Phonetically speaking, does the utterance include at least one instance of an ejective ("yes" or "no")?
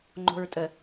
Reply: yes